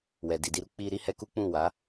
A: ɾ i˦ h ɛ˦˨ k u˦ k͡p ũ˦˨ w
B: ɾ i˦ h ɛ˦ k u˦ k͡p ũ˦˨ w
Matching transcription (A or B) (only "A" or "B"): B